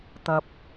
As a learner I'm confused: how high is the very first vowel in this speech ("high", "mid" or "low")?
low